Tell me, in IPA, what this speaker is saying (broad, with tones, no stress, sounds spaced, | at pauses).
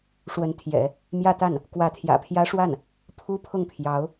ʂ w ə˧˥ n t̪ʰ j ɛ̰˨˩˦ | m j ä˥˧ t̪ a˥˩ n | k w ä˧˥ t̪ʰ j ä̰˨˩ pʰ j ä˥ ʂ w a˥˩ n | pʰ u˥ pʰ ʊ˥˩ ŋ pʰ j ɑ˧˥ ʊ̯